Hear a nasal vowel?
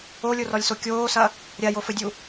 no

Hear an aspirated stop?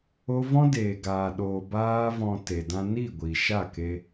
no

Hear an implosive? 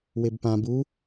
no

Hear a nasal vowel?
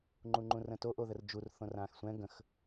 yes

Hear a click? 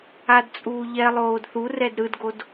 no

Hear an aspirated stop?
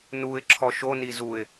yes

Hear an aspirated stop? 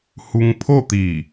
yes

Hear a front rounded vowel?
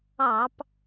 no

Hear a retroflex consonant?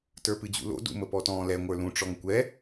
yes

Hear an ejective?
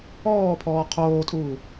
yes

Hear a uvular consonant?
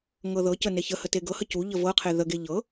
yes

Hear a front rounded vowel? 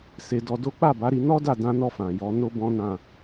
no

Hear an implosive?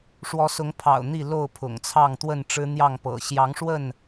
no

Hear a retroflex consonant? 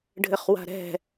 yes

